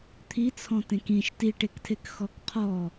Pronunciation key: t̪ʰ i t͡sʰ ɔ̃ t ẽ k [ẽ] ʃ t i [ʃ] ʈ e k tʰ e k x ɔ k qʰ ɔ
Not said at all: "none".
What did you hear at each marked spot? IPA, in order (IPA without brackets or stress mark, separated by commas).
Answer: ĩ, none